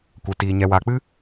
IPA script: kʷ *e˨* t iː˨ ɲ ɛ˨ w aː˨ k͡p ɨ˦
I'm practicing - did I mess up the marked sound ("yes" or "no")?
no